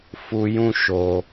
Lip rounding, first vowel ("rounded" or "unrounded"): rounded